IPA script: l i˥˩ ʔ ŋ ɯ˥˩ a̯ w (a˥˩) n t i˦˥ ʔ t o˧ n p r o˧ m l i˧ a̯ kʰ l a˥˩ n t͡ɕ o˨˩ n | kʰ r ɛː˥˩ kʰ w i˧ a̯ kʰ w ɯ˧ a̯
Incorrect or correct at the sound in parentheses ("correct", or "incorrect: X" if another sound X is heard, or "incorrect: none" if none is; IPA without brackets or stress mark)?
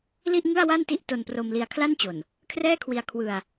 correct